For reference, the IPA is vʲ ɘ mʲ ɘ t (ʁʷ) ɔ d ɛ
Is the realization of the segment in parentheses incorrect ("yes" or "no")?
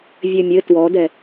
yes